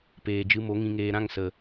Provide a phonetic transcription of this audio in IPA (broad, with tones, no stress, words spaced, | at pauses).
peː˨d͡ʒɨ˧mo˨˦ ŋĩ˨ŋeː˨ɾã˦˨ŋ sə˨